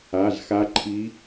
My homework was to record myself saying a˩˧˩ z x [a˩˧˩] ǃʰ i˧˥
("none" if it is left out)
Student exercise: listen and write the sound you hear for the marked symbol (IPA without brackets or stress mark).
a˧˥